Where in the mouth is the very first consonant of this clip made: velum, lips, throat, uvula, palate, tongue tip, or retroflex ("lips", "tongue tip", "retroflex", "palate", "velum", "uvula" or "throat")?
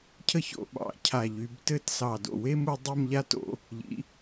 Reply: palate